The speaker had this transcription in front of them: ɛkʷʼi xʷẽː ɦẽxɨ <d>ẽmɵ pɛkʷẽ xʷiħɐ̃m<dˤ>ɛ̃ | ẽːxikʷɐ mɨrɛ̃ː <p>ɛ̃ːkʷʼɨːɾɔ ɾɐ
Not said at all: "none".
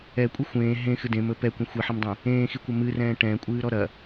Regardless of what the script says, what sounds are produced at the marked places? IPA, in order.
d, dˤ, ʈ

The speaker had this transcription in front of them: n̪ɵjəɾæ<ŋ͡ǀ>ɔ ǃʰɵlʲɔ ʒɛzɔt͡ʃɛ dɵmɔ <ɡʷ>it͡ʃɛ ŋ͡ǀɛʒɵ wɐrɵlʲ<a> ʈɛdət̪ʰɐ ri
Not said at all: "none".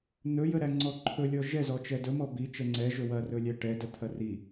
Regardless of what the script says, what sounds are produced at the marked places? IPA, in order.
ŋ͡ǀ, b, æ

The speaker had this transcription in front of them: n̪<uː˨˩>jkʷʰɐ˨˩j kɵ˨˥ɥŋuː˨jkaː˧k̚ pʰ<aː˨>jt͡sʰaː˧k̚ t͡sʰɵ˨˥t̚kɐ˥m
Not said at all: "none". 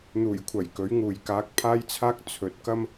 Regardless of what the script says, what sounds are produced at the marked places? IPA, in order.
uː˨˩, aː˧

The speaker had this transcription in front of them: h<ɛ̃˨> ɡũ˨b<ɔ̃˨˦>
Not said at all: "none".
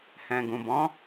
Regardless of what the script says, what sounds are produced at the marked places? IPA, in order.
ɛ̃˨, ɔ̃˨˦

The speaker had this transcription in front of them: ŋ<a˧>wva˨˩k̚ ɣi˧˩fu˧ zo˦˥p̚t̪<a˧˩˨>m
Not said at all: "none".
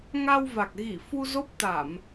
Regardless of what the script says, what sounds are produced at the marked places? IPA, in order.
a˧, a˧˩˨

